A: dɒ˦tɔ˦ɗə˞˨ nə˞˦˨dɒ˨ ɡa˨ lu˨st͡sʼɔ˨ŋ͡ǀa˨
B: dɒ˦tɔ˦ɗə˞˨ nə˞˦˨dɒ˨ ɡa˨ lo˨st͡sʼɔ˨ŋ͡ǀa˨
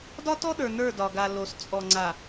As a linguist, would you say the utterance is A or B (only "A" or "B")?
B